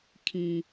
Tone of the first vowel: low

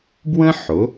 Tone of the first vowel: high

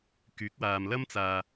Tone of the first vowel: rising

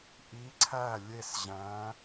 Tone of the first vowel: rising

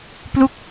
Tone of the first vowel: falling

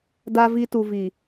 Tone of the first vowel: high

